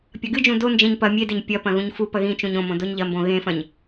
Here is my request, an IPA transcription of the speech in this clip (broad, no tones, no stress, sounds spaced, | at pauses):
pʲ ɐ ɡ ɨ d͡ʒ ũ d o n d͡ʒ ẽ ɲ p ɐ mʲ e d e ɲ pʲ ɐ p ɐ̃ ɣ ũ ɲ f u p ɐ ɣ ĩ t͡ʃ ũ ɲ õ m õ d o ɲ ʎ ɐ m b õ ɣ ẽ f ɐ̃ ɲ